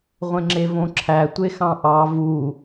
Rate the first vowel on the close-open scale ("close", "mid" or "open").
mid